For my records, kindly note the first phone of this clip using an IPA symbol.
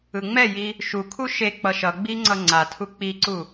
ɯ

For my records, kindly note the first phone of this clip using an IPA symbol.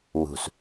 w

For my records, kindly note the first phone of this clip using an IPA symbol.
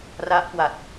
r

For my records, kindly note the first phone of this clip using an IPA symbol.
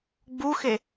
ɡ͡b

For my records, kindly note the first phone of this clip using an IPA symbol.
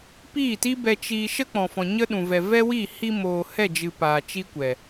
p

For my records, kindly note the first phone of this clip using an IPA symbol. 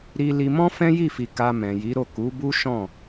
ɾ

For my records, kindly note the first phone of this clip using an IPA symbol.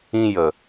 ĩ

